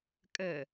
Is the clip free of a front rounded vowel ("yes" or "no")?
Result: yes